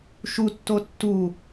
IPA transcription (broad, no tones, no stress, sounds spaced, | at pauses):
ʃ u tː o tː u